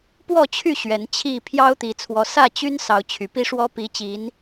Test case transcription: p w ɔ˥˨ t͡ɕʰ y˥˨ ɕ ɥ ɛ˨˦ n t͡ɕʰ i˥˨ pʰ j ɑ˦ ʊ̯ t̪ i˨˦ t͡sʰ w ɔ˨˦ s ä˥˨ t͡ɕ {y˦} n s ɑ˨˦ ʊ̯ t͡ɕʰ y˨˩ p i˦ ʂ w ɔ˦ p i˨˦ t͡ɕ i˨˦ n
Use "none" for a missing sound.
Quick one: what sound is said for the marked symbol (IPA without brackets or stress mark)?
y˦